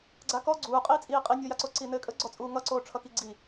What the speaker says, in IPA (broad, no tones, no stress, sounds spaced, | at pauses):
ɡ͡ǀ a k ɔ ɡ͡ǀ uː qʼ iː t͡sʼ iː qʼ i nʲ ɔ j a ǀ o ǀ i n ɘː kʼ ə ɡ͡ǀ ɔ t͡sʼ uː ŋ ʌ ǀ oː ʈ͡ʂʰ ʌ k i ɡ͡ǀ i